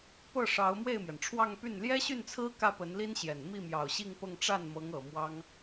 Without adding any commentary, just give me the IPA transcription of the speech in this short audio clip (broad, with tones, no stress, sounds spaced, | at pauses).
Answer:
p ɤ˥˩ ʂ ɑ˧˥ ʊ̯ m w e˥˩ ɪ̯ m j ɛ˩ n ʈ͡ʂʰ w ɑ˥˧ ŋ p y˥˩ n l j ɛ˥ ɕ y˥˩ n t͡sʰ ɹ̩˥ k ä˥˩ p ə˧˥ n l i˥ n ɕ j ɛ˨˩ n m i˥˩ m j ɑ˨˩ ʊ̯ ɕ i˥˧ ŋ p ɤ˥˧ ŋ ʈ͡ʂ a˥˩ n m ɤ˧˥ ŋ ɤ˨˩ m w ɑ˥ ŋ